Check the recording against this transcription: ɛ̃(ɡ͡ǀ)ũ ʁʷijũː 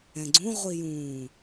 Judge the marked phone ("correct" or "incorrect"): correct